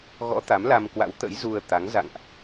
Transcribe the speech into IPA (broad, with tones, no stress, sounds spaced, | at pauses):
ɣ ɔ̰˧˥ t̪ a˨˦ m l a˧ m k w a̰˧˥ w t̪ ə̰˧˥ j z u˧ ə̯ t̪ a˨˦ ŋ z a̰˧˨ ŋ ʔ